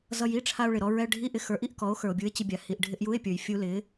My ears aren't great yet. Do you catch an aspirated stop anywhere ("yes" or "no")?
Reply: yes